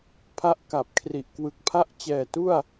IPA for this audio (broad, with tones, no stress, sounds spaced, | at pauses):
pʰ a˥˩ ʔ k a˨˩ p̚ kʰ r i˨˩ ʔ k w ɯ˨˩ k̚ pʰ a˥˩ ʔ t͡ɕ ɛː˨˩ t u˥˩ a̯